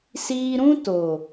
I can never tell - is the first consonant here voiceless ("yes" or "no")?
yes